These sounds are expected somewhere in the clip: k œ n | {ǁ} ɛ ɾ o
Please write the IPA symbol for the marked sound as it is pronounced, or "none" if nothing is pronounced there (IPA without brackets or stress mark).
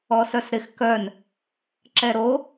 ǁ